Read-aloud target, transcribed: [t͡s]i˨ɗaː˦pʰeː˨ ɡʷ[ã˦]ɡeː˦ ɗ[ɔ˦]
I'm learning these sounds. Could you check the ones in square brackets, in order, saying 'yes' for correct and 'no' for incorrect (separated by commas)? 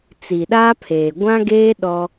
yes, yes, yes